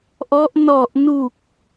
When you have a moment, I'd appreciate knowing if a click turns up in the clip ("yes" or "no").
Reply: no